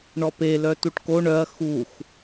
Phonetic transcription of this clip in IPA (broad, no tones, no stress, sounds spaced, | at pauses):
ɳ ɔ p e l œ t u ʈ k o ɳ œ ɐ̯ x u x